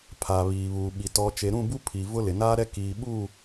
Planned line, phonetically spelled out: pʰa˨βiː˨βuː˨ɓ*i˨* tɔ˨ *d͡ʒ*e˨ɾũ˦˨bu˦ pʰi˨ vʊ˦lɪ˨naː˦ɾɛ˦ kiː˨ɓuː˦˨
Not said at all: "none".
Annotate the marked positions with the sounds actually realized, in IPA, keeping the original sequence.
i˨, t͡ʃ

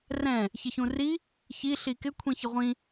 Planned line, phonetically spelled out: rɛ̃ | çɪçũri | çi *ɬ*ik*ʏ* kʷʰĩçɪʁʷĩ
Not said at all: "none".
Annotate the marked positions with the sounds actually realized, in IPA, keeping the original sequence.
ɬ, ɪ

